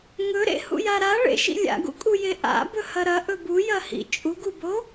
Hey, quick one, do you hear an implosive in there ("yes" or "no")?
no